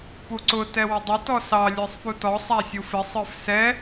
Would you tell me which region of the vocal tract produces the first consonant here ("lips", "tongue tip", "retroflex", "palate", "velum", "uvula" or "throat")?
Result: lips